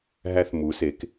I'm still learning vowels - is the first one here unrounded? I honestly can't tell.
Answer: yes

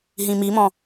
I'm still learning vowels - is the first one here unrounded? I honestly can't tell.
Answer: yes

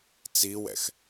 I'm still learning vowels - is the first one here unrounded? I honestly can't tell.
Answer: yes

